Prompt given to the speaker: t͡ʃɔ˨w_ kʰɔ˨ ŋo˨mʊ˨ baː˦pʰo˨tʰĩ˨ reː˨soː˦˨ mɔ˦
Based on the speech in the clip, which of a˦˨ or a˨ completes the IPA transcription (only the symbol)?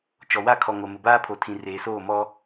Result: a˦˨